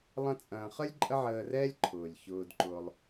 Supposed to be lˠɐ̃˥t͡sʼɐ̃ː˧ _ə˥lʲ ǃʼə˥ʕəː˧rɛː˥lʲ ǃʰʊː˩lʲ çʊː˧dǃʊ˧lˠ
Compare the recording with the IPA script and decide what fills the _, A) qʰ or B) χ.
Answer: B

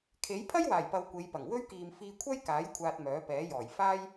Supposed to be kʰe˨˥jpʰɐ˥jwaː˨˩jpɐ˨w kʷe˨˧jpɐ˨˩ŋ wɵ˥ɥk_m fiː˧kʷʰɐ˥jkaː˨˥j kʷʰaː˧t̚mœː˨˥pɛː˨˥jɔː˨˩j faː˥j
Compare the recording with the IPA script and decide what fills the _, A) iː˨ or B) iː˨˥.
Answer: A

